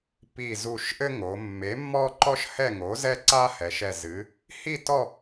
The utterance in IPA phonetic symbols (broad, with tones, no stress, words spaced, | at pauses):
pi˧˩ zu˧˩ʃʔɘ˦ŋo˩˧ mːe˩˥mːɔ˦ ǃɔ˦ʃ hɛ˥˨ ŋo˩˥zɛ˦ǀa˦ hɛ˩˧ʃɛ˧˩ zɨ˩˧ | hi˥˨ tɔ˥˨